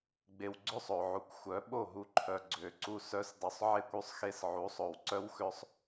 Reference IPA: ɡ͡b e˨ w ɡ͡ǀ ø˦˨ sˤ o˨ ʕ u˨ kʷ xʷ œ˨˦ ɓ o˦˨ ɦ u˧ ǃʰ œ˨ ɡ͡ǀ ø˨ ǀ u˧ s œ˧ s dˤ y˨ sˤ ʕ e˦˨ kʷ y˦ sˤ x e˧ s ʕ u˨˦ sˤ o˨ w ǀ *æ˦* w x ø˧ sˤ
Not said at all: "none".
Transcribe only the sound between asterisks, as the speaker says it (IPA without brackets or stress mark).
œ˦